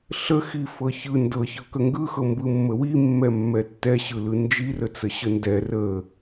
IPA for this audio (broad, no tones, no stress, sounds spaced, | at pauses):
ɬ ə x i f ɤ ç ɯ n d ɤ ç ɤ k ə ŋ ɡ ɯ x ɤ m b ɯ mː ə w i mː ɛ mː ɛ tː ɛ ɕ ɯ l ɯ n d͡ʒ i r ə t͡s ə ɕ ə n d ɛ r ə